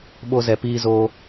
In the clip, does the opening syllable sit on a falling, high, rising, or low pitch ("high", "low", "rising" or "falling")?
high